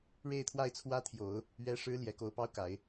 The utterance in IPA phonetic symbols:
ɻe˥˧ɪ̯t̪ʰwa˥˩ɪ̯t͡sʰwä˥t̪ʰjo˨˩˦ʊ̯ | ɥɛ˧˥ʂɻ̩˧˥ ljɛ˨˩ ko˧˥ʊ̯pɑ˥ʊ̯ka˨˩˦ɪ̯

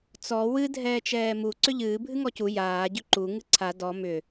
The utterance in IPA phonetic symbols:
t͡sɔ wɨ dʱɛːt͡ʃɛːmu ǀʏʎɨː bʱɨŋɔcu jaː ɟʏǃu ŋɨǀʰa dɔ mʏ

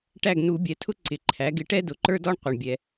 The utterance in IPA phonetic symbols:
ʈæ˥˩ɡnu˨˩˦bʲɛ˩˥ tʰʊ˥ ǀɪ˩˥ǃʰæ˩˥ ɡɪ˩˥ ʈɛ˥dʊ˩˥ǃə˞˥dɔ˥ɳ qʷʌ˩ɳbʲɛ˩

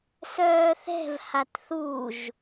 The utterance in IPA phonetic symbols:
sœːθɛ̤v hatθuʒ

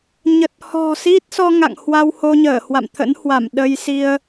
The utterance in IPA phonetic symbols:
ɲə˨˩t̚hɔ̤˨˩ si˦˥t̚sɔ˧ ŋa̰˧˨ŋhwa˧w ho˧ɲəː˧˩hwa̰˧˨mt̪ʰə̰˧˥n hwa˧˩m ɗə˧jsi˧ə̯

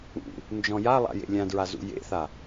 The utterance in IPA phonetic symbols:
ṵ | nd͡ʒɔ̃jalˠa̰jḛ lʲãdɹazṵ jḛθa

